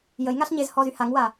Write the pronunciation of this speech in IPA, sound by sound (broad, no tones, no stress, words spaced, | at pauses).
jəjŋaɬ ɲezhɔzy haŋwa